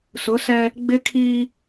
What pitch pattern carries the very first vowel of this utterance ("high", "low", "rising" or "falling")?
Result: rising